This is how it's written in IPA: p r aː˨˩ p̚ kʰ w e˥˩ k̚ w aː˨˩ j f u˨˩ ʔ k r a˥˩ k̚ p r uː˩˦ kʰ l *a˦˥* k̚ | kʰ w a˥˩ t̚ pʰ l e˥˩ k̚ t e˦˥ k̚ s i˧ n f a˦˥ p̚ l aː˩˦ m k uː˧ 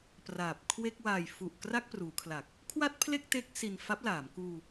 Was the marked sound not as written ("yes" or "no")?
yes